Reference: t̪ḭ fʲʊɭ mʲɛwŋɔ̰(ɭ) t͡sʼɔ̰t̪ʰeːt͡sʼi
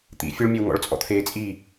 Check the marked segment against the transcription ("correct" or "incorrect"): correct